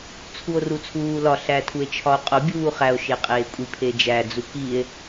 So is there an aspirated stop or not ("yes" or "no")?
yes